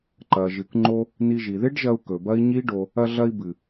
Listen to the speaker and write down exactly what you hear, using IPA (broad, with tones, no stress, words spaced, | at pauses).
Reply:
ǃɐ˨ʒɨ˨kŋ͡ǃo˧ | ni˧ʒi˨ ðe˦ɖʒɐ˧u̯ kɵ˨bɐ˦i̯ ɲi˦ɖo˧ | ɐ˧ɮɐ˧i̯bɨ˨